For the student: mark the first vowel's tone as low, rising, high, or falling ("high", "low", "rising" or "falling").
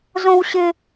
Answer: high